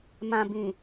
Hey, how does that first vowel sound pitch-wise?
low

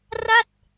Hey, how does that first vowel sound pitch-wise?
falling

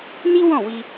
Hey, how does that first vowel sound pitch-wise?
high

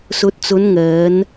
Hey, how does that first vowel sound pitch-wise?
low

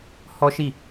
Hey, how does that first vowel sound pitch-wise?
high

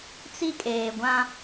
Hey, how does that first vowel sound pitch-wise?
high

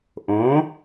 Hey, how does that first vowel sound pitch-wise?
rising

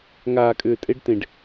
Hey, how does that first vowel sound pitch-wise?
low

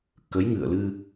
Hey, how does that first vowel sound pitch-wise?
rising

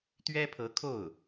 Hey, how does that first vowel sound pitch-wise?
high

